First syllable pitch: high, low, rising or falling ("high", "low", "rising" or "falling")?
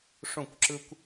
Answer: falling